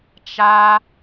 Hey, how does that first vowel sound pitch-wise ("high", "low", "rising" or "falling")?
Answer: high